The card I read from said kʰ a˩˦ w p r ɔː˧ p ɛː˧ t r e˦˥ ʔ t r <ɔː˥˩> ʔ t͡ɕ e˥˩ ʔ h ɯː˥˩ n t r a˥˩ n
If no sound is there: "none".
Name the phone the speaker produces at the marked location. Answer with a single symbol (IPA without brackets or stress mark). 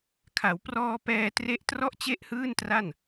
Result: ɔ˥˩